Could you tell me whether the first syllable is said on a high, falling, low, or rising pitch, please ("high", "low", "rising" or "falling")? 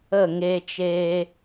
falling